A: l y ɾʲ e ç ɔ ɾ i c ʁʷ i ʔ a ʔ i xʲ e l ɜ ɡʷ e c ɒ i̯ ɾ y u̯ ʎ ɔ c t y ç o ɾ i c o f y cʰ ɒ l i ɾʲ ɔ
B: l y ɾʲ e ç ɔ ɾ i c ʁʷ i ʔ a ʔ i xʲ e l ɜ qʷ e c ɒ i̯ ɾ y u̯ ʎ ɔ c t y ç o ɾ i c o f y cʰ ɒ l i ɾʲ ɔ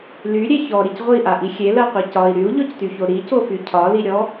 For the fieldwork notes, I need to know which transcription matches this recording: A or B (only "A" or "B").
B